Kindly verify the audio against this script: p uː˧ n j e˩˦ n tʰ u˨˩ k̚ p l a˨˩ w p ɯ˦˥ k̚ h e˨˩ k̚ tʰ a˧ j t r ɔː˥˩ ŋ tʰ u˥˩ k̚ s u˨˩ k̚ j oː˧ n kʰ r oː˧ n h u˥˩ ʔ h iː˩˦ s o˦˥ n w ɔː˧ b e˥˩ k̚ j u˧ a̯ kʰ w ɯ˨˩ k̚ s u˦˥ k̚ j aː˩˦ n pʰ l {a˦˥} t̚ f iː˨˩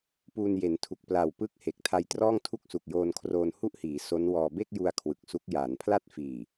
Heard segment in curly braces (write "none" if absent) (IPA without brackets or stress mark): a˥˩